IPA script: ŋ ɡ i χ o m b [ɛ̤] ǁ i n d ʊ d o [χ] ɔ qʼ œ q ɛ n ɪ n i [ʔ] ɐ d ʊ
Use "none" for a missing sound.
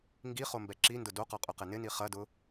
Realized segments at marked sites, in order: ɛ, q, χ

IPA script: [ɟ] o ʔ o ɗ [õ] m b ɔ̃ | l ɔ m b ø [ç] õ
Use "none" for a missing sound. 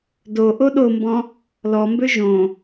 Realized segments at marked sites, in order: d, o, ʒ

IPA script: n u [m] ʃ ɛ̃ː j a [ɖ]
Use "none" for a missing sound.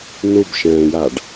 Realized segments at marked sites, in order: b, ɖ

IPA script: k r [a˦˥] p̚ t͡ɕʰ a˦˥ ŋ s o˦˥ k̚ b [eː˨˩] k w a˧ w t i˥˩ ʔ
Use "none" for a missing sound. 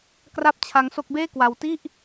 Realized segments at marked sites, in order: a˥˩, eː˥˩

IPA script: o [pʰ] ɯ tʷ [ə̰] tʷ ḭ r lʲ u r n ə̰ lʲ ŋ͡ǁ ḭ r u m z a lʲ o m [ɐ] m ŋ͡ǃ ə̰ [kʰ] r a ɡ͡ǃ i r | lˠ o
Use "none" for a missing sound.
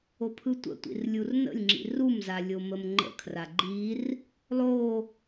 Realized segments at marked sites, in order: pʰ, ə̰, ə, kʰ

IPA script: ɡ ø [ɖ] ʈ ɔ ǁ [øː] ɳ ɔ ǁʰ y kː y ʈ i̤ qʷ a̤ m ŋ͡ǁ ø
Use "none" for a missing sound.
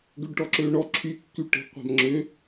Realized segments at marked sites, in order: ɖ, øː

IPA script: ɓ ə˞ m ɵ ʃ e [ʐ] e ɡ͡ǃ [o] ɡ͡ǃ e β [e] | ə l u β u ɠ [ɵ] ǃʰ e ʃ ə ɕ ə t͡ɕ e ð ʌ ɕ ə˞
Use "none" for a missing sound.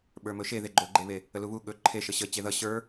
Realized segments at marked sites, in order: ð, o, e, ɵ

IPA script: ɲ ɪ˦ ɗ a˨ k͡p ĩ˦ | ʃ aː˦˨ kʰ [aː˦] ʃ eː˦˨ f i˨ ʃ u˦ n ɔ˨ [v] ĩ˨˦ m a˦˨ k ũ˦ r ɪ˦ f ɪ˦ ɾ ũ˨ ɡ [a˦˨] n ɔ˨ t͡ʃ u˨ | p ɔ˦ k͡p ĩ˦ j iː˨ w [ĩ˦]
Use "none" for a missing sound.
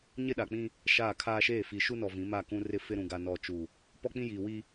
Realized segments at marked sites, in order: aː˦, v, a˨, i˦

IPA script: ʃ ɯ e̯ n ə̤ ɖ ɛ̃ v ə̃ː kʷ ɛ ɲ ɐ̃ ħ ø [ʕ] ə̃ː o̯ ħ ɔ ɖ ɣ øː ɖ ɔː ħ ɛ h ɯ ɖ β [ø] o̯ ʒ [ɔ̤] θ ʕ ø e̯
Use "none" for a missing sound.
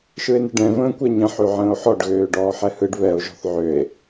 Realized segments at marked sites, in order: ʕ, ɛ, ɔ̤

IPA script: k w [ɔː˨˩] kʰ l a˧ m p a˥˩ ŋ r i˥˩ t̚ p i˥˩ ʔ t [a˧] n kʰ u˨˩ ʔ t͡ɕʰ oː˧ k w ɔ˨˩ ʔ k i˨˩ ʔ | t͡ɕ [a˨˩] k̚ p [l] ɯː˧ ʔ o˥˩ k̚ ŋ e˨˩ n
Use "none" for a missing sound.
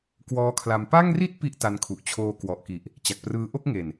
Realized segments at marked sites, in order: ɔː˦˥, a˧, a˨˩, r

